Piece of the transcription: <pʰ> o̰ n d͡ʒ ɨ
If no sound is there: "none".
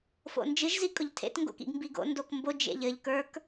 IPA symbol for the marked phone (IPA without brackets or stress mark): f